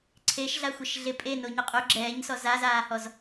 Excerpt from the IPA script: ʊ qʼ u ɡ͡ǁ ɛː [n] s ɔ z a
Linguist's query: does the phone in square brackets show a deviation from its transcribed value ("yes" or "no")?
yes